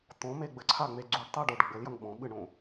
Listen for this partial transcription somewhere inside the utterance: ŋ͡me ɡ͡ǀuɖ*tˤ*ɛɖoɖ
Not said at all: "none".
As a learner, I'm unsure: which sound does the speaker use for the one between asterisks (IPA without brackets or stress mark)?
tˤ